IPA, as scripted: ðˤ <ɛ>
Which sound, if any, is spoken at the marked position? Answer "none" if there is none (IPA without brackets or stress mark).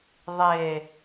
e